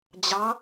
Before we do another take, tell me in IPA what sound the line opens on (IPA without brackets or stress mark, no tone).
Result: d͡ʑ